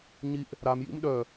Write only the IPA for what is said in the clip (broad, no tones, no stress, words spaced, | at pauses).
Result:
ɲiʔ | ɾamjḭm ɗœ